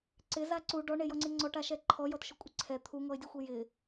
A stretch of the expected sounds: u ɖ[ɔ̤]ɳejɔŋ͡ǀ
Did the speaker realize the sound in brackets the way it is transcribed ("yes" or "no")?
no